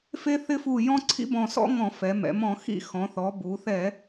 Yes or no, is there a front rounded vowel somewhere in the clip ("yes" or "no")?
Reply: no